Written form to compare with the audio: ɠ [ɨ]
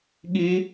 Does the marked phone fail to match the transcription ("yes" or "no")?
yes